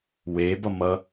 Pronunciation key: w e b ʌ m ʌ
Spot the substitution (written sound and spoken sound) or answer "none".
none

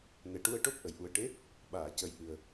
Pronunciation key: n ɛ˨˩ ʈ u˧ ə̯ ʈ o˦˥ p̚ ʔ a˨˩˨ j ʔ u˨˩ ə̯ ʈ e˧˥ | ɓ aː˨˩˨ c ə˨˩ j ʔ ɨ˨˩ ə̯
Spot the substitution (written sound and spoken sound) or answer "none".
a˨˩˨ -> ə˨˩˨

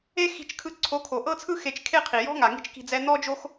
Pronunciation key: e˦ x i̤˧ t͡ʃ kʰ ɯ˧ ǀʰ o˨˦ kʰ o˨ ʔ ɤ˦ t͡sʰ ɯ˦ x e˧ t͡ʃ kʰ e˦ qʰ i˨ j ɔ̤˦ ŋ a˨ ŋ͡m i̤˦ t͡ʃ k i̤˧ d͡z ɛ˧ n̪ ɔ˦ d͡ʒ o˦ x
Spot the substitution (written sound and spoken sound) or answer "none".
ŋ͡m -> ŋ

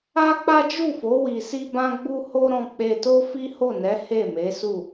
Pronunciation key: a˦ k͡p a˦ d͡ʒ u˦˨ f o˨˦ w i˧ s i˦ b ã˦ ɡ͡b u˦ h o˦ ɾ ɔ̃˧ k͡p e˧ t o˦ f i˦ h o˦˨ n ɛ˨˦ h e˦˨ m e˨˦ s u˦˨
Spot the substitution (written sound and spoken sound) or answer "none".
none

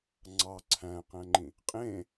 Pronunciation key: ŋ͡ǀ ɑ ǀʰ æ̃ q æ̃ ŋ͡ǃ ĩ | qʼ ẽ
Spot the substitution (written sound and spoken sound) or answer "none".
none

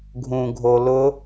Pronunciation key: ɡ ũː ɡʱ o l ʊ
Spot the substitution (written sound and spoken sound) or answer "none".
ɡ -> ɡʱ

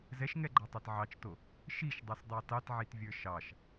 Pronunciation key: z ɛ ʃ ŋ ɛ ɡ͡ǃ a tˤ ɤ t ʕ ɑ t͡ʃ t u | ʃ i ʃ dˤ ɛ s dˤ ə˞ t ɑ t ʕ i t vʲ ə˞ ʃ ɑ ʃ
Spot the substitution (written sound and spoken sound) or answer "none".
u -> o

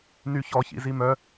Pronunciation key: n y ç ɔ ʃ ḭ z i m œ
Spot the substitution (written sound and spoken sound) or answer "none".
ʃ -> ç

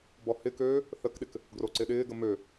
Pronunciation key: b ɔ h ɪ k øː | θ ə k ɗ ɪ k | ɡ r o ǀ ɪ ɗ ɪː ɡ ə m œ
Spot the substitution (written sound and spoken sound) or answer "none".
œ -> ø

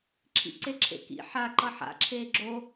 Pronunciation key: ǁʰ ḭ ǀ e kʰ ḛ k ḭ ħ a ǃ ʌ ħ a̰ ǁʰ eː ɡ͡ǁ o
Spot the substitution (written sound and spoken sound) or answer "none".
kʰ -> ǁʰ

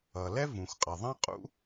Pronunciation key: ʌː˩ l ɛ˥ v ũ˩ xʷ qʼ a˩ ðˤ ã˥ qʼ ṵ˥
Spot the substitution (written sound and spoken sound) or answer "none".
none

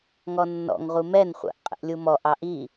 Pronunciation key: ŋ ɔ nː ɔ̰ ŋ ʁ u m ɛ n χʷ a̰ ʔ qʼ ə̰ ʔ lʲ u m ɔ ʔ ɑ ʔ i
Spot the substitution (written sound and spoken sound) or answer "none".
none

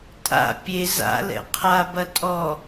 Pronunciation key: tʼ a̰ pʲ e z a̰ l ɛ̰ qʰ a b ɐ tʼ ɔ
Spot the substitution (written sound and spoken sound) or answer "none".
none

